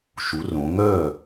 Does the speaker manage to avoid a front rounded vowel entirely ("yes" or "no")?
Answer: no